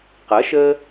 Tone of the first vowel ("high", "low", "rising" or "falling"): rising